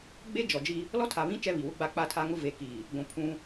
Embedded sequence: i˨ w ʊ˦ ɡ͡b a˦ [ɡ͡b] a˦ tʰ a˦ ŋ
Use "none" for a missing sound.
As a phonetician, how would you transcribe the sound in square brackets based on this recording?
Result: k͡p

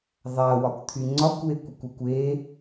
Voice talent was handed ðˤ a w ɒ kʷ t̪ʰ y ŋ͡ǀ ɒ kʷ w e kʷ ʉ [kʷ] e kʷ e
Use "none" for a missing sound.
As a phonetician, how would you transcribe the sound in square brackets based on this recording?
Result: kʷ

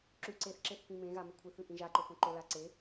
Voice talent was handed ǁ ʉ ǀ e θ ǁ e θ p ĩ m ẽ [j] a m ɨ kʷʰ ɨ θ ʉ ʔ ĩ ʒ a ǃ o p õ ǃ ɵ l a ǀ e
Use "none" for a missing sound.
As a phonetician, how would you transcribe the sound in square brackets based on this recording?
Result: ɣ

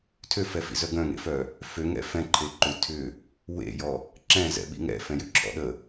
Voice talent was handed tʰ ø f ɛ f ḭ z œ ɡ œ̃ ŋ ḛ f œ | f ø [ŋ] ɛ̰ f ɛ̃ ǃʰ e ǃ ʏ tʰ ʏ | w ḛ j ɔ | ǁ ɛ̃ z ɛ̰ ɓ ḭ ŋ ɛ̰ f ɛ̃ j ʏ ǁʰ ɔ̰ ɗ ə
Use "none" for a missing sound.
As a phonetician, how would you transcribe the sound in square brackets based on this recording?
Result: ŋ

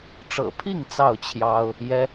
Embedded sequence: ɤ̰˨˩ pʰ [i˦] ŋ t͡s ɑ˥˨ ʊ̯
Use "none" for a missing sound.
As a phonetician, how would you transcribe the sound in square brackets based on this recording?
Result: i˥˨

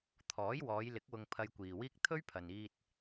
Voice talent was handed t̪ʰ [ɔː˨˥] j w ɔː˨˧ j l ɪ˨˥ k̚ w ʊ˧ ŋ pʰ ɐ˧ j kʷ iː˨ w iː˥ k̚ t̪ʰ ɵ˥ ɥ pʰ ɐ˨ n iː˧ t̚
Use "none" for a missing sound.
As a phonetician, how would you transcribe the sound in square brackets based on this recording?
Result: ɔː˨˥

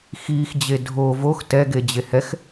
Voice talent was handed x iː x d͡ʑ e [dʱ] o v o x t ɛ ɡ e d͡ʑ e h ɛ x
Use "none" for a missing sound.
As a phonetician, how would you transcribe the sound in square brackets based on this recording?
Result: dʱ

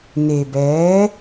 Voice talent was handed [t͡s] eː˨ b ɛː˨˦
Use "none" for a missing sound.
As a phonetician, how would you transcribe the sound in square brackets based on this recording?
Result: n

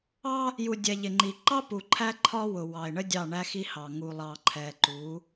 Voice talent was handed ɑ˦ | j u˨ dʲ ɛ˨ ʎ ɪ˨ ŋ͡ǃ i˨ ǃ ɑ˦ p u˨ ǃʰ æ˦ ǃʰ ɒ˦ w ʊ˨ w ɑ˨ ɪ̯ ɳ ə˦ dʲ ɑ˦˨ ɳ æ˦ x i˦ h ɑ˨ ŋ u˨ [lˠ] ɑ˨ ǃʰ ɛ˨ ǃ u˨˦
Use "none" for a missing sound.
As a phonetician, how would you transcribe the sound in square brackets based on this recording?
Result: lˠ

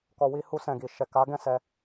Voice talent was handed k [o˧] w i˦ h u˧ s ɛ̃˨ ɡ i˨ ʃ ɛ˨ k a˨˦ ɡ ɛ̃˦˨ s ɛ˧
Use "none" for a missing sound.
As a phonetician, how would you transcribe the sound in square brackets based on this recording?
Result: ɔ˧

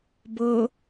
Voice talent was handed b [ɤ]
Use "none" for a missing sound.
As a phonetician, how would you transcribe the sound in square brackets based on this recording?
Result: ɤ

